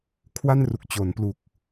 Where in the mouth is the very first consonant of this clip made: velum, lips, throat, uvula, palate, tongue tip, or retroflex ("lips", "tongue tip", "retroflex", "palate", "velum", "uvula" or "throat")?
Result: velum